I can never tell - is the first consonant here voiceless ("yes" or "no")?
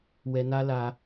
no